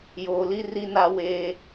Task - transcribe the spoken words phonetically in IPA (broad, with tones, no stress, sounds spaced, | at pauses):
j oː˨ l i˦ r i˦ n a˦ w eː˦